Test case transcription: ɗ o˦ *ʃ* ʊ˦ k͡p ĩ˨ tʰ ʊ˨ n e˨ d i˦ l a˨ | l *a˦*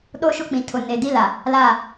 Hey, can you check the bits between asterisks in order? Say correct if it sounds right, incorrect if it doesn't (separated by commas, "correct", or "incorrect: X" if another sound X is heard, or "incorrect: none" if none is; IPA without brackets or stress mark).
correct, incorrect: a˦˨